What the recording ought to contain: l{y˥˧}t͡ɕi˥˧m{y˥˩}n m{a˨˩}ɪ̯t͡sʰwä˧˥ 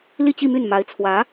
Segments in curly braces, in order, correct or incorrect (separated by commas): incorrect, correct, incorrect